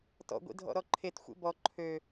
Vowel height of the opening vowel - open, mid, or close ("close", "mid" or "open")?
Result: mid